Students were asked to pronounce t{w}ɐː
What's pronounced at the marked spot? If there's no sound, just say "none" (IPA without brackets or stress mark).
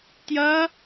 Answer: j